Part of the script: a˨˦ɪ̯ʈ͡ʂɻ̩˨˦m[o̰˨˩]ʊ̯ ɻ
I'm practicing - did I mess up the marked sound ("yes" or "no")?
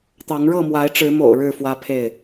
no